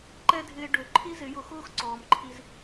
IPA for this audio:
ǃɛ˦dʱɪː˧ ɖø˨˦ ǃʰi˦zɪ˨˦jʊ˧xʊː˦x ǀɔː˨mǃʰi˧z

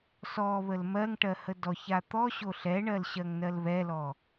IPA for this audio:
sɔβəl mɜŋʈɜ hədɔça t̪ɔɕo ɬɛɳɜl ɕɜŋnɜlβɛlɔ

